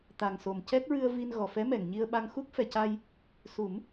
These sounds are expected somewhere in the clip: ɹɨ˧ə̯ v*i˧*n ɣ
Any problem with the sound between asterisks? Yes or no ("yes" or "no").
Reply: no